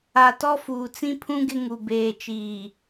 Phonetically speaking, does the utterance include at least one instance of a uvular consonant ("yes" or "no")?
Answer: no